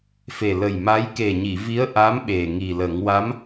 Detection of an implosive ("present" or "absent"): present